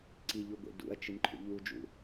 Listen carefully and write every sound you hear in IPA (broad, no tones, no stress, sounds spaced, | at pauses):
ǀ i ʎ u ɡʷ ḛ d ṵ ɐ̯ t͡ʃ ɨ n ǃʰ ṵ ʎ u d͡ʒ ṵ